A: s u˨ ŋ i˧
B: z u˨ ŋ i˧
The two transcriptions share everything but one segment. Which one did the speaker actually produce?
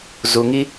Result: B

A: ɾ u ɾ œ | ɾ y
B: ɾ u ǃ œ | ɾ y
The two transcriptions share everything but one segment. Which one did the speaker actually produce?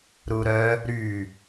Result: A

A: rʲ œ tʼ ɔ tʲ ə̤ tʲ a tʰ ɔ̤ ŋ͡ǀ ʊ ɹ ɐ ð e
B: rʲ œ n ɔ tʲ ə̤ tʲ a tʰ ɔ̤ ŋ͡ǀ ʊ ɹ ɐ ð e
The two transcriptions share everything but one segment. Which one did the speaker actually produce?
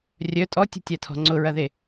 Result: A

